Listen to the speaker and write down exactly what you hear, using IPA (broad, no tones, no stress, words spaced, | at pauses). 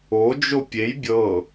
od͡ʒo pʲej bʲɤ